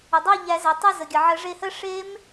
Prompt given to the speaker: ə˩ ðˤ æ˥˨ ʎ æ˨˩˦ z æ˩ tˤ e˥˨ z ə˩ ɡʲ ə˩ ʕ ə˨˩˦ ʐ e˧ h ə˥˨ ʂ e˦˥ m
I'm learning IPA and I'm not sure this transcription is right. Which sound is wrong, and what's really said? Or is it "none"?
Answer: ðˤ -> dˤ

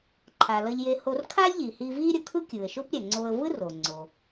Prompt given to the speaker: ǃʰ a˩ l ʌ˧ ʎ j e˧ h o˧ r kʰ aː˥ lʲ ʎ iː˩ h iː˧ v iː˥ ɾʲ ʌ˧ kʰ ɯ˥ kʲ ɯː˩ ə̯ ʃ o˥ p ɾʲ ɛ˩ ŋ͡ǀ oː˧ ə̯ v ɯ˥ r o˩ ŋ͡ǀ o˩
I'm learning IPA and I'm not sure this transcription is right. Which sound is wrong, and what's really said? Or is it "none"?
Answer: none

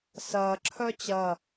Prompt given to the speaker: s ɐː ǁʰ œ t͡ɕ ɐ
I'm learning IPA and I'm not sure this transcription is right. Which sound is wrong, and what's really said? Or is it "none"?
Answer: none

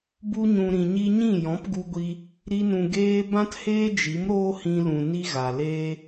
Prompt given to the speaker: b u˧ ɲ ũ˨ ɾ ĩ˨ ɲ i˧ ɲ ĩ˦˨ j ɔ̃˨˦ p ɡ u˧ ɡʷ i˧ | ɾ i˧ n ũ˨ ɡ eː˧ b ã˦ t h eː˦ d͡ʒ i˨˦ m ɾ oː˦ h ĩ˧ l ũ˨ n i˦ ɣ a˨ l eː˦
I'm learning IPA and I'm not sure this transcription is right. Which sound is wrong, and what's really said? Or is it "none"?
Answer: none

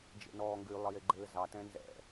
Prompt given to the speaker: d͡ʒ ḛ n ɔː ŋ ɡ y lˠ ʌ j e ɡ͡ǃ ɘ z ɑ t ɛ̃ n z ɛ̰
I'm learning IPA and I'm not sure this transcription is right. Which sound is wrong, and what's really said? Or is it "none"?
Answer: ʌ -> ə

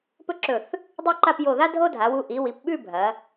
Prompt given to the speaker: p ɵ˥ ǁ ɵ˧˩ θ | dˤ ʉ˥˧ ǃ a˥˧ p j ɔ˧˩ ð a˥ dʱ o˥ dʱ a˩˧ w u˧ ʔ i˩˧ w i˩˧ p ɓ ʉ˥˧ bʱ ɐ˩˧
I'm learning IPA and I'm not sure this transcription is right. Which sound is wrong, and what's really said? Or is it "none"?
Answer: ɔ˧˩ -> o˧˩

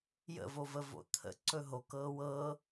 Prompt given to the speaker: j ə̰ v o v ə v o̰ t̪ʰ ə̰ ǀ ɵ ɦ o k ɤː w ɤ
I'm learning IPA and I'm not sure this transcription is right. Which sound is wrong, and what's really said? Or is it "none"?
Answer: none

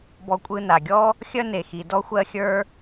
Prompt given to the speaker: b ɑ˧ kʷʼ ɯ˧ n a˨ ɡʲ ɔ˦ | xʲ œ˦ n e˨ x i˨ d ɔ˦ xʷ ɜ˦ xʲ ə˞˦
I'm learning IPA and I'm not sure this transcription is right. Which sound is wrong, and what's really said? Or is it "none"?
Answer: ɑ˧ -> ɔ˧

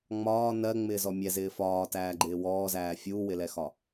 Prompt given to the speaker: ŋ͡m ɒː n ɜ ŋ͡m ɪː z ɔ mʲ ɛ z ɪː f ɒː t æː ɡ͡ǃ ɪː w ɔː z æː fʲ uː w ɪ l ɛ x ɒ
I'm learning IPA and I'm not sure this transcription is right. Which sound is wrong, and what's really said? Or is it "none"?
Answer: none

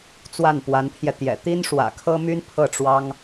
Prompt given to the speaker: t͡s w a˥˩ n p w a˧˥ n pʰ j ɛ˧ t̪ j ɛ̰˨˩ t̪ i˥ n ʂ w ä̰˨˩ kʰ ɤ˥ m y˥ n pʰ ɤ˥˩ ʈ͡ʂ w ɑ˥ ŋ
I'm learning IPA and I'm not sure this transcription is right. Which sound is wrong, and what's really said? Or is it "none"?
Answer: none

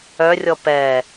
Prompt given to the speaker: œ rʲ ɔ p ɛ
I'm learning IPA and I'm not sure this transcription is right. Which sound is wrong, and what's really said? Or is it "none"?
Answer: none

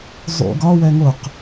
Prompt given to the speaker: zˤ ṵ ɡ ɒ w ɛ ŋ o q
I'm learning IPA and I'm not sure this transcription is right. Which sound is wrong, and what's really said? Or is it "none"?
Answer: none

